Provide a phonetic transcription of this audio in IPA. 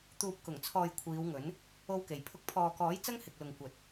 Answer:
t̪ uː˨ p̚ k ʊ˨˩ ŋ t͡sʰ ɔː˨ j kʷʰ iː˨˧ w ŋ ɵ˨˥ n | o˥ w k e˨ j pʰ ʊ˥ k̚ pʰ ɔː˨ k ɔː˨˥ j t͡s ɐ˥ ŋ h ɪ˨ k̚ l ʊ˨ ŋ kʷ ɐ˨ t̚

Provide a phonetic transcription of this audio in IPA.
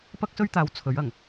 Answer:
p ɐ˥ k̚ s ɵ˥ ɥ t̪ aː˨˥ w t͡sʰ ɵ˨˥ ɥ ɐ˨˩ ŋ

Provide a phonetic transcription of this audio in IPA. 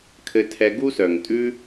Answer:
kʰ ɘ˧ tʰ ɛ˧ ɡ u˧ s œ˨ ŋ tʼ ʉ˧

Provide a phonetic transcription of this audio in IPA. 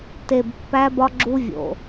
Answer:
t e˨ b pː æ˦ b ɒ˦ ɡ͡ǁ u˦ vʲ o̰˨

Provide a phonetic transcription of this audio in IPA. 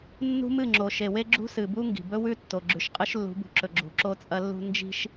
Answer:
nː ṳ˦ m ɨ˦˨ ŋ͡ǁ o˨ ʃ e˨ w e˦ ɡ͡ǁ ṳ˦ s ɨ˨ b u˦ ŋ ɡ i̤˨ b ɵ˦ w ʉ˦ tː o˨ ɡ͡ǁ ʉ˨ ʃ qʼ ɨ˦ ʃ lː ṳ˨˦ b ṳ˨ ǁ ɵ˨ ɡ͡ǁ ṳ˨ ǁ o˦ t͡sʼ ɐ˦ lː ṳ˦ n d͡ʒ i̤˦ ʃ

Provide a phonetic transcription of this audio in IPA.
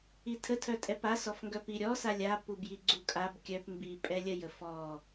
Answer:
i tʰ ə tʰ œ tʼ ɛ p a s ɔ f ŋ ɡ œ p i ɾʲ ɔ s a lʲ a p u b j i ɡ͡ǀ u kʼ a b kʲ œ p m b i pʼ ɛ lʲ ə j ə f ɔ

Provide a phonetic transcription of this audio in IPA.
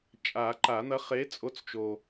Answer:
t͡ʃʼ a˨˩˦ ǃ a˨˩˦ n̪ ɐ˨˥ χ e˨˥ t͡sʼ o˨˥ t͡s t͡ʃ o˨

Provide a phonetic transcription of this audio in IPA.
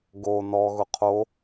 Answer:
ɡ o n ɔ ɣ ʊ qʰ o

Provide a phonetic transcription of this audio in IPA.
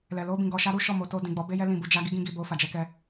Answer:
l ɛ˨ l o˧ b ĩ˨ ɡ ɔ˨ ʃ a˧ ɾ u˦ ʃ ɔ˦˨ m o˧ t o˧ d ĩ˨ ɡ͡b ɔ˨˦ b e˦ j ɛ˦ l ĩ˦˨ b u˧ d͡ʒ a˦ ɡ i˦ ɡ ĩ˦ ɡ i˧ b o˧ f a˨ d͡ʒ ɛ˧ k ɛ˧

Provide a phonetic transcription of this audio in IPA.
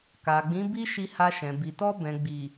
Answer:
k a˨ ɡ͡b ĩ˨˦ b i˦ ʃ i˧ h a˧ ʃ ɛ̃˨ b i˨ t ɔ˧ b ɛ̃˨ ɡ͡b i˨

